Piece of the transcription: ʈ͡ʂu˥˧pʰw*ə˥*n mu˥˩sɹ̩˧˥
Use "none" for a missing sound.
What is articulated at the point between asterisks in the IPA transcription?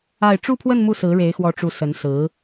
ə˥˧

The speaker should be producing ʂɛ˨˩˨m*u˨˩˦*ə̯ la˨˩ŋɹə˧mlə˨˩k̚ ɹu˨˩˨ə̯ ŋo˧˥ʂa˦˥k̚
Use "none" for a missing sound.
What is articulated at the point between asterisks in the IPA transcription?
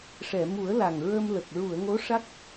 u˨˩˦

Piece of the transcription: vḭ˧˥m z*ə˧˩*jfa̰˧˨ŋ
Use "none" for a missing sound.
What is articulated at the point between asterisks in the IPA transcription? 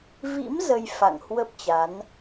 ə˧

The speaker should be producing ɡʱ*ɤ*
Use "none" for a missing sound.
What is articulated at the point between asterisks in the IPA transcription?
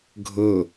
ɤ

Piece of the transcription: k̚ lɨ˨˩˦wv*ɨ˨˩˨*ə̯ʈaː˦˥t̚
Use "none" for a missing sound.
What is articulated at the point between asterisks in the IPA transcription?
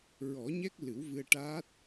ɨ˧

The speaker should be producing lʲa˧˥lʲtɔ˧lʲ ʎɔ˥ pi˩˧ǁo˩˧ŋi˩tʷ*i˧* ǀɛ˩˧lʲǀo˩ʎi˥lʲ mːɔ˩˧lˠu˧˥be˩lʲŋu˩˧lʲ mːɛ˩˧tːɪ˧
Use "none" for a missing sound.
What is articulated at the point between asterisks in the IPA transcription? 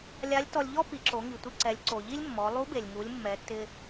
i˧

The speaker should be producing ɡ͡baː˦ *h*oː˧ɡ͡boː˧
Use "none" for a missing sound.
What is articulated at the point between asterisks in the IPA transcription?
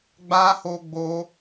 h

